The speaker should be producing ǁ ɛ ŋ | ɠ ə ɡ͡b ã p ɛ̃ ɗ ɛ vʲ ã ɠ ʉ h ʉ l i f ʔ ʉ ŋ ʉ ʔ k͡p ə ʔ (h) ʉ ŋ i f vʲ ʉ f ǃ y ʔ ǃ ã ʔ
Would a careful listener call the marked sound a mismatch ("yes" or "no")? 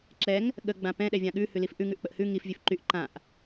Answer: no